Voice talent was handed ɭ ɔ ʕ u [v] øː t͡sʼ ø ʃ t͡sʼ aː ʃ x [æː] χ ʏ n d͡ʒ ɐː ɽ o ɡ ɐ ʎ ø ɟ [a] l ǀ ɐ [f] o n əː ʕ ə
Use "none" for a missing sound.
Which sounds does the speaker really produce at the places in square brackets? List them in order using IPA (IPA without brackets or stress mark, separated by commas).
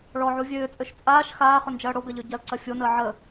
vʲ, aː, ɐ, fʲ